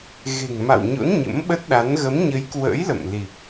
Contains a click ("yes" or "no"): no